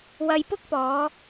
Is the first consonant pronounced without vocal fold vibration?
no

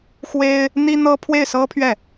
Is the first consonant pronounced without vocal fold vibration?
yes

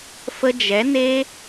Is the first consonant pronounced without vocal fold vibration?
yes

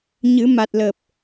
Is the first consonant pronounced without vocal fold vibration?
no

